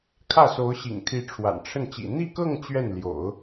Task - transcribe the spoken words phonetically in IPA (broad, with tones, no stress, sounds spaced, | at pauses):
kʰ ä˥˩ s o˧˥ ʊ̯ ɕ ḭ˨˩ ŋ t̪ʰ i˧˥ ʈ͡ʂʰ w a̰˨˩ n ʈ͡ʂʰ ə˥˩ n t͡ɕ ḭ˨˩ n̪ i˥˧ k ɤ˥˧ ŋ t͡ɕ ɥ ɛ˥˩ n l j o̰˨˩˦ ʊ̯